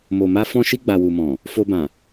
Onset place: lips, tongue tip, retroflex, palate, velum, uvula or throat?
lips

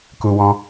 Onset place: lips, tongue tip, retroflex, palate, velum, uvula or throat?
velum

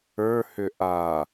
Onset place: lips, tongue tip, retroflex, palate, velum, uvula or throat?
throat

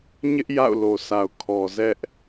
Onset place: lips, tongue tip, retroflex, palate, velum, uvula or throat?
palate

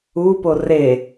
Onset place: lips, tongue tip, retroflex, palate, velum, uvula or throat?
lips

